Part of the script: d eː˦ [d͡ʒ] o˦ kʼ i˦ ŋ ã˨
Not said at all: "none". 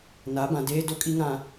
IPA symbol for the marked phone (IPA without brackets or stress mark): d